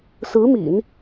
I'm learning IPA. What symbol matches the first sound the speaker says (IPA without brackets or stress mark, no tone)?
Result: s